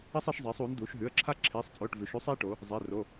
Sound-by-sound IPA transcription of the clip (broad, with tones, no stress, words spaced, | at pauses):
ɐ˦sˤi˩˧ʃzˤeː˩˧sˤuː˩˧n d̪uː˩˧ʃɦʉ˩˧˩ə̯ǁʰa˦ ǁʰeː˩˧˩sˤt͡sʼoː˩˧˩ʈ vʉ˩˧ʃʉ˦sˤiː˦ʈo˩˧ | zˤe˩˧˩ ro˩˧˩